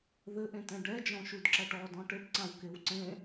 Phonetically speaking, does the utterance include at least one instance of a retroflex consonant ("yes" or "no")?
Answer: yes